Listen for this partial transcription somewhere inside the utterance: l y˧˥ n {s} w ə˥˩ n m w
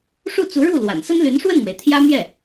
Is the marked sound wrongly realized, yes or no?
yes